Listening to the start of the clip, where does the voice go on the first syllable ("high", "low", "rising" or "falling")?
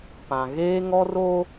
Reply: low